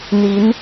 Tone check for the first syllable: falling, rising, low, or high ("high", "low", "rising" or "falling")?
rising